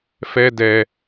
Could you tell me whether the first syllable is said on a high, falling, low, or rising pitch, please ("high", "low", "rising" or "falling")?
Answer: high